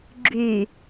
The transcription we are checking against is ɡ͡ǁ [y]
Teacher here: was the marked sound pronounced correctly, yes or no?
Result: yes